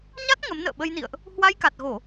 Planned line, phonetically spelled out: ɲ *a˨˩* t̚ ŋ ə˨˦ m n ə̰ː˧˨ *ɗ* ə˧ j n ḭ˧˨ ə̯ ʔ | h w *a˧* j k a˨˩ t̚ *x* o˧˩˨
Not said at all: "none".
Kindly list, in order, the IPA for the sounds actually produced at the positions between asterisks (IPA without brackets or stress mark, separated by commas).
a˦˥, ɓ, a˧, ɣ